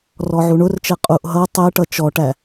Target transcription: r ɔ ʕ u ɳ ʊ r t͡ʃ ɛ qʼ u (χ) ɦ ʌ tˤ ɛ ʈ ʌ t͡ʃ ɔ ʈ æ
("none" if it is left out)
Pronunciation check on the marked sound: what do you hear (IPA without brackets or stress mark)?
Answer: ʔ